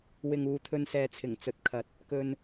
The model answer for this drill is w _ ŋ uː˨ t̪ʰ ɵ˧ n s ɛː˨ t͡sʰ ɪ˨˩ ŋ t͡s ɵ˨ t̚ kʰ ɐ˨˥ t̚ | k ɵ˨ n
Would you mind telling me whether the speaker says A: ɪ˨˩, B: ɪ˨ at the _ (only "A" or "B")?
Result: B